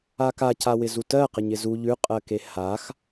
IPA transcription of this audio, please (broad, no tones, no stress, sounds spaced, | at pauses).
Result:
a k a c a w ɪ z u t ɜ q ɪ ɲ ɪ z u ʎ ʉ qʼ ɜ k e h a x